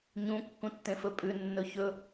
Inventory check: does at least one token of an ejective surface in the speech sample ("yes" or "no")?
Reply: yes